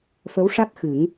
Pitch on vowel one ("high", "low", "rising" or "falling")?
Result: rising